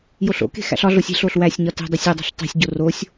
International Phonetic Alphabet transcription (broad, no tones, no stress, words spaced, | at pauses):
joɬo̰ke̤ xæ̰ɬɒɮosʲ e̤ɬoɬ wæsʲɲɒ te̤dˤisʲ odˤṳɬ tˤi̤sʲɟo rosʲ